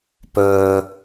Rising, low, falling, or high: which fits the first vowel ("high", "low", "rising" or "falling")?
low